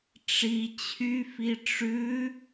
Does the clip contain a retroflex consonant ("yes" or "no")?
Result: yes